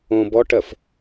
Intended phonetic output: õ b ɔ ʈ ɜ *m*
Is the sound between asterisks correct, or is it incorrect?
incorrect